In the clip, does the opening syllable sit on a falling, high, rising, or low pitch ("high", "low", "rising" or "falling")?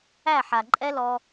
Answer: falling